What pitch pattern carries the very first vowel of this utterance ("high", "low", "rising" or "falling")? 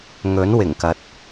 rising